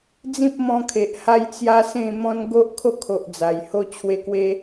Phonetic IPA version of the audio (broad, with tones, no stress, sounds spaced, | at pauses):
d͡z ĩ˦ p̚ m ɔ̃˧ kʰ e˨ ʔ h a˦ j t͡s j a˦ s ẽ˥˧ m ɔ̃˦ n ɡ o˦ ʔ kʰ o˥˧ kʰ o˨ ʔ d͡z a˨˩ j h o˦ t͡ɕʰ w e˦ k w e˦